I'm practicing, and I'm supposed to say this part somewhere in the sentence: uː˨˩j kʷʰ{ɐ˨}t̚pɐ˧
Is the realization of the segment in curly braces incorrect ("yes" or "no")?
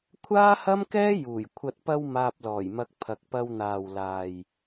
no